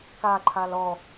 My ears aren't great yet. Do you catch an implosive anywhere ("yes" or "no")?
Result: no